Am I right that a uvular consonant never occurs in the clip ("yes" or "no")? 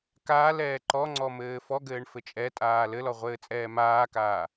no